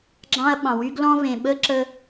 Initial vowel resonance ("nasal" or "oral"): nasal